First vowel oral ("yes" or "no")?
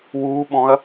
yes